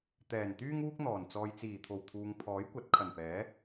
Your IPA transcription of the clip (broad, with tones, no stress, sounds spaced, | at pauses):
t̪ ɛː˨˩ n t̪ yː˥ ŋ uː˥ k̚ n̪ ɔː˨˩ n t͡s ɔː˨ j t͡s iː˨˩ t̪ʰ o˨˩ w t̪ʰ uː˨ ŋ pʰ ɔː˨˥ j kʷ ɐ˨˥ t̚ kʰ ɐ˨˩ n p ɛː˨˥